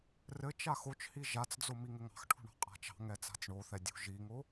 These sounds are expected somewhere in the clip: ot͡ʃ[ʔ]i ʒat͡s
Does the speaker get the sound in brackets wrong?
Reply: yes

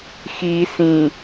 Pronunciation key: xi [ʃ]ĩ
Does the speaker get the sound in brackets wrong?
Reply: yes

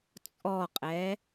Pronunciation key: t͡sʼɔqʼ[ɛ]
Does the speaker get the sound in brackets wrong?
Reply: no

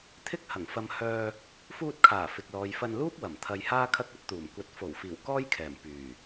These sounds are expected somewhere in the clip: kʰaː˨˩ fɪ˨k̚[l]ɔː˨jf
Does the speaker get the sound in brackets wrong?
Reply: no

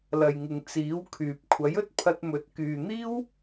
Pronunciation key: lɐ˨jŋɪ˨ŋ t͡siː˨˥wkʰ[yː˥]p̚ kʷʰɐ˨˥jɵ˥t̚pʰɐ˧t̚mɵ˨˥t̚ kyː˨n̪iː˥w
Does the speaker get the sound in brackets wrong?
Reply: yes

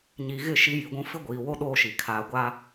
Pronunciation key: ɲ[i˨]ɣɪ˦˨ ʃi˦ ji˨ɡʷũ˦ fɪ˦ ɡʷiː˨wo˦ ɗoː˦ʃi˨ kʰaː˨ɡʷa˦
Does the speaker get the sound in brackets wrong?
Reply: no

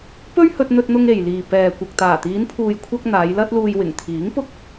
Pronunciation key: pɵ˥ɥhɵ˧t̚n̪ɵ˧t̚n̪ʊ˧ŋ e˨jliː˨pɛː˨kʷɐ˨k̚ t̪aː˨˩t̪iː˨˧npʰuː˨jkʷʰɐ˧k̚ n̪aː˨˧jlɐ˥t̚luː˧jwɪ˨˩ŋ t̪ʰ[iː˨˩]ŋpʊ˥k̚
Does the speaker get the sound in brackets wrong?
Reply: yes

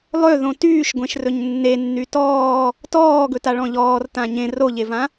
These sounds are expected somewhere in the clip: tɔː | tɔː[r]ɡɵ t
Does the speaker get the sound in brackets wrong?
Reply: yes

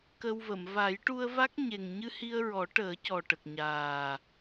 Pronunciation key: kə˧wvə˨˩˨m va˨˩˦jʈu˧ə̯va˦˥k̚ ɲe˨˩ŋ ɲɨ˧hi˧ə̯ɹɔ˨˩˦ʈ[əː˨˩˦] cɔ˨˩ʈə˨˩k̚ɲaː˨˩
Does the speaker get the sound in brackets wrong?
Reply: no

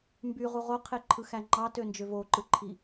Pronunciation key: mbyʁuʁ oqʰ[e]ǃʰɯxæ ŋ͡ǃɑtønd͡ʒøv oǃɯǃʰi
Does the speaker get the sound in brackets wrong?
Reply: no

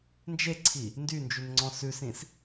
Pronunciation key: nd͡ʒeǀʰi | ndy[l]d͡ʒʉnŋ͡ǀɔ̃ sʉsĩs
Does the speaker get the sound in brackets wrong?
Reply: yes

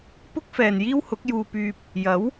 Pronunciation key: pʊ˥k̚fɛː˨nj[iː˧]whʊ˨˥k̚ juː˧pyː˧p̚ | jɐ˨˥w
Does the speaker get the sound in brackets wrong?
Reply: yes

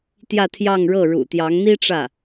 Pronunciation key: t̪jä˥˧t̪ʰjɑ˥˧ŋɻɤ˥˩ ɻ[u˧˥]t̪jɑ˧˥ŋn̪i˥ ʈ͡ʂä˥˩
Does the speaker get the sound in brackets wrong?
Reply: yes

